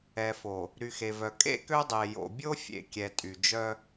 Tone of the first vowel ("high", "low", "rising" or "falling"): low